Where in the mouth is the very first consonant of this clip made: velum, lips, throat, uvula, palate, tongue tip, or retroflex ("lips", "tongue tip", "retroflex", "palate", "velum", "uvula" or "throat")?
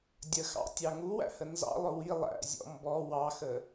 tongue tip